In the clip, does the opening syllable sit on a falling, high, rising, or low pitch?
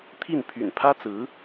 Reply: falling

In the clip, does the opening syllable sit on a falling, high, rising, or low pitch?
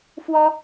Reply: high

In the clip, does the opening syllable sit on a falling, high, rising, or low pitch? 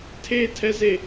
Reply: high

